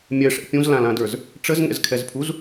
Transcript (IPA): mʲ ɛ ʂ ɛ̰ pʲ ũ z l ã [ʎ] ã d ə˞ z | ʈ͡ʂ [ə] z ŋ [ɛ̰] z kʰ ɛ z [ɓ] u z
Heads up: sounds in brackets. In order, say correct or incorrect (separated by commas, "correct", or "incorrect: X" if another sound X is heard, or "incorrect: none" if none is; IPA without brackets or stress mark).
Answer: incorrect: l, correct, correct, incorrect: pʰ